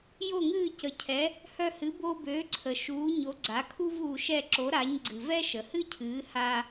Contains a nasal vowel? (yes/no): no